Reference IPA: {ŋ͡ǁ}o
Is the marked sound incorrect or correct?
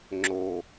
correct